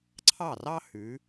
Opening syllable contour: falling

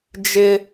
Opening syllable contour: high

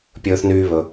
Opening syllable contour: high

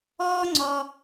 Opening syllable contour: high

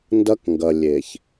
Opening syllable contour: high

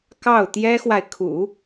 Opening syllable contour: falling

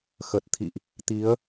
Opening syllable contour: low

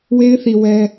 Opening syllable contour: high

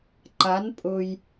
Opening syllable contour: rising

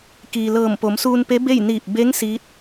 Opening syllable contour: low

